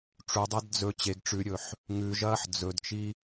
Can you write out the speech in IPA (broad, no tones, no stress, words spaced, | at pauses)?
ʈ͡ʂudˤad d͡zɵ t͡ɕeɡ ʈ͡ʂʉɾʲɵħ | ŋʉʒɐːħ d͡zɵdt͡ʃi